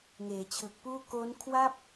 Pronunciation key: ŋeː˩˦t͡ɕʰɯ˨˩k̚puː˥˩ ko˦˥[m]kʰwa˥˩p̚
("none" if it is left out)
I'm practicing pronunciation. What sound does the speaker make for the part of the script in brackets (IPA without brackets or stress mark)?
n